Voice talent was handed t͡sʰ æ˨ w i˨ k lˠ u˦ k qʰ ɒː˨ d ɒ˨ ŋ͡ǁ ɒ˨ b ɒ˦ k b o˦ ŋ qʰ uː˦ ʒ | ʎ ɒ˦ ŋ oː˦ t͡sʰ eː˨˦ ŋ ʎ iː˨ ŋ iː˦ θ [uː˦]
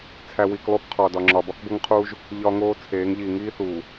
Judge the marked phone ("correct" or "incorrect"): incorrect